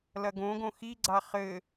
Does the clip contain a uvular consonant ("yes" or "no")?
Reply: yes